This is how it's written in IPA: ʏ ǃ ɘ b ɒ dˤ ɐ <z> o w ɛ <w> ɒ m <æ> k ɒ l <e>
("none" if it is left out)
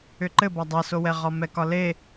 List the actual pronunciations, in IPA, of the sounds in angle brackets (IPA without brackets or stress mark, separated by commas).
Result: s, ʁ, ɛ, e